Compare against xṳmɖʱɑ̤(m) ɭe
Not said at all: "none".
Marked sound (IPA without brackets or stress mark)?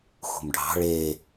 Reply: none